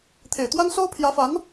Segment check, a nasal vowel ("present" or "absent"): absent